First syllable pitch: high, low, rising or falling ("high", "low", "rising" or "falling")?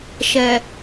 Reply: low